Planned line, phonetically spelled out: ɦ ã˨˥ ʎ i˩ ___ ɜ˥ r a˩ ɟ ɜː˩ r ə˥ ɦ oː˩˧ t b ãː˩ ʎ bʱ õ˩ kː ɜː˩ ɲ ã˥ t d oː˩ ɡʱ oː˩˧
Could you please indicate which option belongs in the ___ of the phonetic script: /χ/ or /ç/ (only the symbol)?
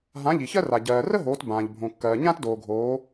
ç